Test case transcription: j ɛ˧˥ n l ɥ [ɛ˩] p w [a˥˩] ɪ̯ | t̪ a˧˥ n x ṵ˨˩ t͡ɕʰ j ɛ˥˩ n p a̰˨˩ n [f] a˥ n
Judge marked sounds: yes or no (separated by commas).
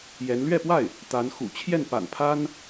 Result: no, yes, no